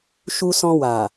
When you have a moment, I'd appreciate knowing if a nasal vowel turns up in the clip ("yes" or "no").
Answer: yes